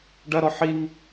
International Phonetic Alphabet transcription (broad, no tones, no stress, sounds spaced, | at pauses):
ɖ ɐ ɾ ɔ ħ i ŋ